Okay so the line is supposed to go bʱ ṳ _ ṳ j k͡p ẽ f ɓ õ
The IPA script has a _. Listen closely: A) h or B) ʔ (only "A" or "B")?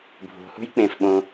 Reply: A